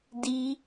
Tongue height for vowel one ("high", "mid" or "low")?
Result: high